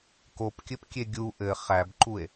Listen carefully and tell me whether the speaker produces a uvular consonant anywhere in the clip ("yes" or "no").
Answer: yes